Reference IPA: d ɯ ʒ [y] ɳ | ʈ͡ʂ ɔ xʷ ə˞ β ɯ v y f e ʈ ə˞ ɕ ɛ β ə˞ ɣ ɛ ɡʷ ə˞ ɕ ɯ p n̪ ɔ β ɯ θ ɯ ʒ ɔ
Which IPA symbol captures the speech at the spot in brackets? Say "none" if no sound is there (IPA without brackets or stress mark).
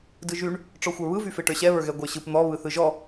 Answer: y